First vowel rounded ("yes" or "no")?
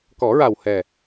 yes